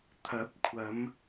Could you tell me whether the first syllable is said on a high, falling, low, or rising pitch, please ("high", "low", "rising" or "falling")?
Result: rising